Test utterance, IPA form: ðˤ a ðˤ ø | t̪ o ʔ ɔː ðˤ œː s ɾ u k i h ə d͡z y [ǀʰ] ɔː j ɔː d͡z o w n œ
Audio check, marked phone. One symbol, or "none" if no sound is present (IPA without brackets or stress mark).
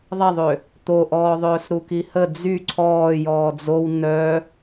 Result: ǀʰ